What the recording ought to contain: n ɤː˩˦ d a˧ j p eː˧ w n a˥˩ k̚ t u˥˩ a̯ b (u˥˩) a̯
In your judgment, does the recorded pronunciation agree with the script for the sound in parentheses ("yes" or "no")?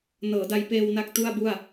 yes